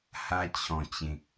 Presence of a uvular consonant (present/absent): absent